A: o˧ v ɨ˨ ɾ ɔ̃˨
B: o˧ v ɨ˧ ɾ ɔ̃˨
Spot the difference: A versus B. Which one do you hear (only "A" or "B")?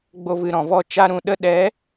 A